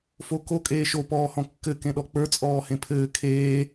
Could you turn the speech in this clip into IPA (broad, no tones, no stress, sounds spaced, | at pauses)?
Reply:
f o k o kʼ eː ʃ o p ɔː h ɔ̃ kː ɘ k ẽ ɗ ɔ k͡p ə˞ t͡sʼ ɔː h ẽ pʰ ɘː kʰ eː